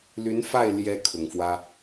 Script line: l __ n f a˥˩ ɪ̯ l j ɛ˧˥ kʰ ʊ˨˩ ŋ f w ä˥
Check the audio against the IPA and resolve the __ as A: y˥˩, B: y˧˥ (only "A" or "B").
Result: B